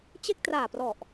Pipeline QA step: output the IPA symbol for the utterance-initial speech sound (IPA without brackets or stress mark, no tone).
t͡ɕ